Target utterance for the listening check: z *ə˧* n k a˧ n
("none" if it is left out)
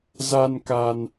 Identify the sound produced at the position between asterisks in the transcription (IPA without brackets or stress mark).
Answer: a˧